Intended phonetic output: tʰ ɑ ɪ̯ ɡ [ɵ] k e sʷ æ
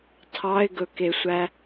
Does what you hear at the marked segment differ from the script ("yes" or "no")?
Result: no